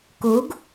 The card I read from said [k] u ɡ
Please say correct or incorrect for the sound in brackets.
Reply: correct